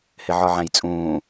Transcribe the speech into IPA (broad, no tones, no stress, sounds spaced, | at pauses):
h ɪ ʕ ɒ ʕ æ̃ j t͡sʼ ũː